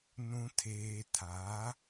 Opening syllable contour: low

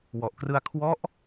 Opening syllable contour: low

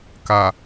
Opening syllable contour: low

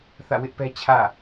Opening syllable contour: falling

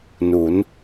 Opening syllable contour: rising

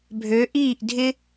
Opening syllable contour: rising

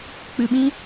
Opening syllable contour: low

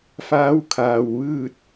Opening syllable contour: rising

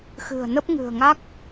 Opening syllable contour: low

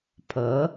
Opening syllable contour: rising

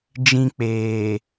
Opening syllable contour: high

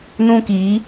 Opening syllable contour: high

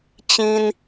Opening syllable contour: high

